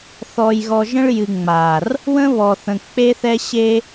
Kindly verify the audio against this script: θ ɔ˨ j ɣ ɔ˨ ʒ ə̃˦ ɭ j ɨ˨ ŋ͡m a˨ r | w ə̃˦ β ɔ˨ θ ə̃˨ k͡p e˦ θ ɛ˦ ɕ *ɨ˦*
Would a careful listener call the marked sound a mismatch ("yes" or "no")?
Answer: yes